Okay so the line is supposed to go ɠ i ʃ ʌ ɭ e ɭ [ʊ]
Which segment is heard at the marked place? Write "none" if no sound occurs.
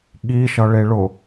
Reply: ʊ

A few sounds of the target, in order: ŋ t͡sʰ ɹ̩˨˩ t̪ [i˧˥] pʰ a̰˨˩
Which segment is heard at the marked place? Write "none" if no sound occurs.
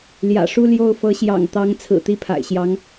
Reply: i˥˩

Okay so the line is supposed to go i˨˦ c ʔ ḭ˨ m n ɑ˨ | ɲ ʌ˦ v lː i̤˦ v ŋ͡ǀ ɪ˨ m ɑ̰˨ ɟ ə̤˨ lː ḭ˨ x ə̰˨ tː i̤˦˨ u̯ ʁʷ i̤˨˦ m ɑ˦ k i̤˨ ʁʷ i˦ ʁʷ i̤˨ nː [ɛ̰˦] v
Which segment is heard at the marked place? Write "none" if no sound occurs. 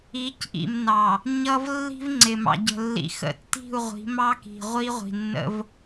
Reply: ə̰˦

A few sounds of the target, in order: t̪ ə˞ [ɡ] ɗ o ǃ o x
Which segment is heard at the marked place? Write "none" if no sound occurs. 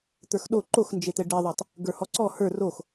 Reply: x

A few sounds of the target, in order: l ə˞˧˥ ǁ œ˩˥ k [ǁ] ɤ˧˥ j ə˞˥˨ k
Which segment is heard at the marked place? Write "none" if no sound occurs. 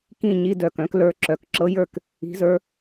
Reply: ǁ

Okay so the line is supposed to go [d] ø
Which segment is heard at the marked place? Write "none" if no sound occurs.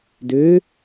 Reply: d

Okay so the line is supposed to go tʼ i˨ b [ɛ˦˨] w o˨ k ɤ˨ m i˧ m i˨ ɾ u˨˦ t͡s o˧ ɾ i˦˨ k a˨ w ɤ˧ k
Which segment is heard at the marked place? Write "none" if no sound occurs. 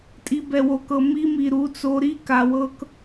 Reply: ɛ˨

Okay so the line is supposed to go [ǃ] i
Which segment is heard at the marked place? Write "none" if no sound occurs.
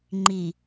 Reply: ŋ͡ǃ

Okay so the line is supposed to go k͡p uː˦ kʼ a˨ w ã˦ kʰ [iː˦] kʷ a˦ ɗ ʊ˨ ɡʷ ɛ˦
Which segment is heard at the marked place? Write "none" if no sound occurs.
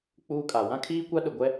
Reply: iː˦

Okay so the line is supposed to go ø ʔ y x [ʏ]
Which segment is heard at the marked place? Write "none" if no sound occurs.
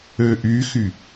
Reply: y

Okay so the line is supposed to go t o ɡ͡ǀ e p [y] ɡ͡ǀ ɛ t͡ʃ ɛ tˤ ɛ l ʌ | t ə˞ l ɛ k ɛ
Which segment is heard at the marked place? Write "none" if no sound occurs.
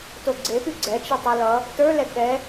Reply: y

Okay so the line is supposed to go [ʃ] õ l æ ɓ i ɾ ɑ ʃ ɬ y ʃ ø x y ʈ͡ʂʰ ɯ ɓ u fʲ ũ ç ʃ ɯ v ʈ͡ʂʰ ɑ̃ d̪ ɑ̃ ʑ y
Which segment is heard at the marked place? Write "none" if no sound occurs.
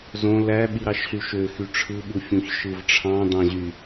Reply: z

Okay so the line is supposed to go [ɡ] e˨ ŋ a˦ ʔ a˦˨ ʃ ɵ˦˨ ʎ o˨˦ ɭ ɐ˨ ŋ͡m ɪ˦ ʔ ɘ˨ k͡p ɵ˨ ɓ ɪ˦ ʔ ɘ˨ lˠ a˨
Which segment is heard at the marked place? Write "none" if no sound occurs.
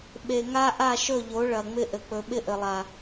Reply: ɓ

